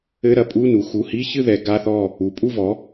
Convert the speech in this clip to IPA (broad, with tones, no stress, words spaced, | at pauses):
ɘ˧˥˧ɾɐ˧˥˧pʼu˧˥˧nu˩˧ xu˩˧˩hi˧˥˧çɨ˥˨ ðɛ˩˥ɡa˧˥˧θɔ˥˨ | u˩˧pʼu˥˨vɔ˩˥